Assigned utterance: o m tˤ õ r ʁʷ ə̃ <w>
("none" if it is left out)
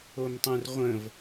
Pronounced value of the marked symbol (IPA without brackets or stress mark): v